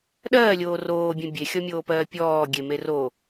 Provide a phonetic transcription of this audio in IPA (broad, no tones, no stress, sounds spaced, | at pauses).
ɗ ɜː lʲ oː r oː bʲ ẽ bʲ e xʲ ɔ mʲ oː p ɜː pʲ ɔː ɡʲ e m e r o